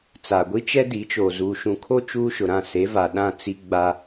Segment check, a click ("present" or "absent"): absent